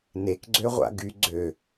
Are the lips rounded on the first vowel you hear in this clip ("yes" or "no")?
no